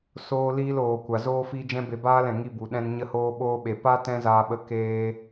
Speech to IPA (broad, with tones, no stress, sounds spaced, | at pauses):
s oː˧ l iː˧ l oː˨ kʷ a˨ z oː˦ f i˦ d͡ʒ ɛ̃˦ b e˧ b aː˦ l ɛ̃˨ ŋ i˧ b u˨ ɗ ɛ̃˧ n ɲ ə˧ h oː˧ ɓ oː˧ ɓ e˨ p a˦ t ɛ̃˦ z aː˧ ɓ ə˧ k eː˧